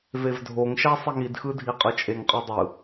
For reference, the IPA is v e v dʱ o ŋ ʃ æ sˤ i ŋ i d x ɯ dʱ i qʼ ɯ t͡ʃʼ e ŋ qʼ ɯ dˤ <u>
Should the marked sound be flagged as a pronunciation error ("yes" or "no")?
yes